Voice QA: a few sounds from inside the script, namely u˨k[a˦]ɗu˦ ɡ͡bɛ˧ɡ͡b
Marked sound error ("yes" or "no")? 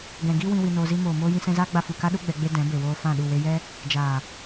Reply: no